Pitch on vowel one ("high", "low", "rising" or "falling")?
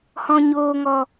low